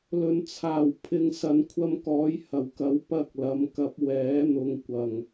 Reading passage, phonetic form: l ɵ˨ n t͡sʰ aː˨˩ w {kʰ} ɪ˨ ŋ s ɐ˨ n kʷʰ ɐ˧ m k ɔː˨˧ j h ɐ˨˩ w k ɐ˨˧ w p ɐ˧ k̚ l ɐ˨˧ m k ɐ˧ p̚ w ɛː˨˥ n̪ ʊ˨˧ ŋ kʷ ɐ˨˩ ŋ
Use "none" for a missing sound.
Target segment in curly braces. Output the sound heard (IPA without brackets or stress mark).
pʰ